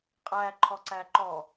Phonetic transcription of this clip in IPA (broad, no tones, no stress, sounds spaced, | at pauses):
qʼ æ ǃʰ ɔ ǀ æ ǃ ɔ